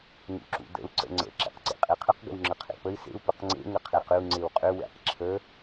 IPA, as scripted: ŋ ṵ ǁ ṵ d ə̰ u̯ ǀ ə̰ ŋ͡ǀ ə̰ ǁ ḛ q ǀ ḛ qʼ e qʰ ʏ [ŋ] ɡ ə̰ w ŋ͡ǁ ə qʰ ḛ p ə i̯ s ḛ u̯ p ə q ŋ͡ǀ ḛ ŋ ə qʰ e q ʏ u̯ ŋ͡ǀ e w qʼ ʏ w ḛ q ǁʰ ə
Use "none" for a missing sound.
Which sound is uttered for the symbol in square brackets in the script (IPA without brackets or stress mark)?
q